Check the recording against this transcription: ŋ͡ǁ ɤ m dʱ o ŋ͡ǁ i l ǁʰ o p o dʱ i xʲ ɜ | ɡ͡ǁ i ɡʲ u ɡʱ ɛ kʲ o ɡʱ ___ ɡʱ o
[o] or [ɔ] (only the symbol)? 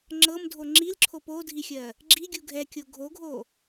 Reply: o